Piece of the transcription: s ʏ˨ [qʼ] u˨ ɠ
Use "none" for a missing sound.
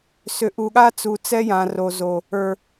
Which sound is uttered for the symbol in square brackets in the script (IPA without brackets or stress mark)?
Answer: ʔ